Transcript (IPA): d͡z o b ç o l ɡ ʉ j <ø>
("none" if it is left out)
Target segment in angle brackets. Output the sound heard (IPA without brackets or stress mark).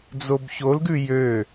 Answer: ø